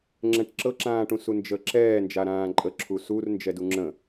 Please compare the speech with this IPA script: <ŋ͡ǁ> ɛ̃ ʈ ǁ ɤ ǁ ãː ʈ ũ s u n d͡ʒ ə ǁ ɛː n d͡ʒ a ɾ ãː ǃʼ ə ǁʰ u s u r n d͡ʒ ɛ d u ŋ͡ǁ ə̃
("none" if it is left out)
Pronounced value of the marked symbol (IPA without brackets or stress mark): ŋ͡ǁ